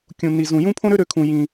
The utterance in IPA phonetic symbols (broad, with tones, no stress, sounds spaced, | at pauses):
kʲ ũ˥ n i˥ z ũ˥ j ũ˥ pʰ õ˥ ɾ ø˥ ɾ ø˥ kʰ ũ˥ j ĩ˥